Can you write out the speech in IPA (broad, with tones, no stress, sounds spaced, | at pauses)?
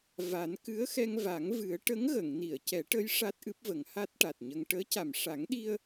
v a˨˩˦ n k ɨ˧˥ ə̯ x ɛ˧ ŋ v a˨˩˦ ŋ v ɨ˨˩˦ ə̯ ʈ ə˧˥ ŋ ɣ ə˨˩˨ ŋ n i˨˩˨ ə̯ c ɛ˨˩˦ ʈ ə˧˥ j ʂ a˦˥ t̚ ʔ ɨ˦˥ p̚ v ə˨˩˦ ŋ h a˦˥ t̚ ʈ a˨˩ t̚ ɲ ə˧ ŋ ʈ əː˧˥ c a˨˩ m ʂ a˨˩˦ ŋ ɗ i˧ ə̯